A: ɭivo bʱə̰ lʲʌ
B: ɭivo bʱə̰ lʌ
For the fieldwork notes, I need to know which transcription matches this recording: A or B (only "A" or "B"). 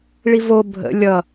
A